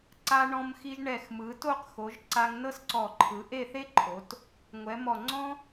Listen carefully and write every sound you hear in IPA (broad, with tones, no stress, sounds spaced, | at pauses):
ǀ a˧ ɳ ɔ̃˧ m x i˧ ʒ ɳ ɛ˧˩ x m ɯ˩˧ t o˥˧ q x o˩˧ ʒ ǀ a˧ ŋ n ɤ˥ s ǀ ɔ˧˩ ǃʰ ɯ˩˧ ʔ e˥˧ θ e˥ ǃʰ o˩˧ t | ŋʷ ɛ˩˧ m ɔ˧˩ ŋ͡ǀ ɔ̃˥